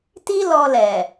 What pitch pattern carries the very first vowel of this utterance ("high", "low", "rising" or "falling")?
high